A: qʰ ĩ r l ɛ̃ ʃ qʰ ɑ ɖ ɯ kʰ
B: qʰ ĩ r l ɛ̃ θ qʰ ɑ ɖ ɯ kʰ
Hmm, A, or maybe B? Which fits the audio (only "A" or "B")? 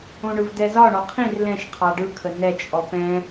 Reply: A